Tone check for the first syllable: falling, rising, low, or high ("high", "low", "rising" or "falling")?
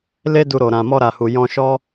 high